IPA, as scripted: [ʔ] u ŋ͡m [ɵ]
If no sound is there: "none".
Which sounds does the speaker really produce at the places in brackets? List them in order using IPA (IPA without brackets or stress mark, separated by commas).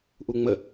ʔ, ə